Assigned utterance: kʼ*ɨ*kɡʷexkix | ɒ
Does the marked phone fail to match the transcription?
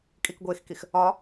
yes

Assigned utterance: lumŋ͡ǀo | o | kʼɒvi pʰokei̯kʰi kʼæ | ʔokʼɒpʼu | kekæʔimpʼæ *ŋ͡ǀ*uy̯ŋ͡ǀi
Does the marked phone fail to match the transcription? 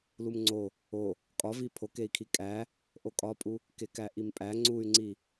no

